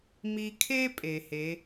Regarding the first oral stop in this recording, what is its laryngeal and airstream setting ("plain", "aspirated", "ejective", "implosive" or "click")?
aspirated